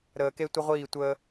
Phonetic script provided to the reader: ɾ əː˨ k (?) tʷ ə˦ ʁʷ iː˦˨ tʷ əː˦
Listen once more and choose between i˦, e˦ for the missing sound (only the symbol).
e˦